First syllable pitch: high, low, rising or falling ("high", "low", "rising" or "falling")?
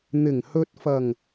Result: low